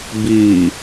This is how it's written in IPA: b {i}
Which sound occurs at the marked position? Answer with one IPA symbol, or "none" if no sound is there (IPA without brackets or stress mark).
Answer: i